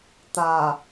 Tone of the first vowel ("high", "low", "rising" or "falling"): low